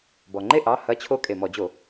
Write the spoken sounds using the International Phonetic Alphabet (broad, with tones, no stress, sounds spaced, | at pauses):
b ɔ˩ ŋ͡ǃ e˥˧ ʔ ɑ˩˧˩ h ɐ˧˥ t͡ɕʰ o˧˥ kʼ e˩ m ɔ˧˩˧ d͡ʑ o˧˩˧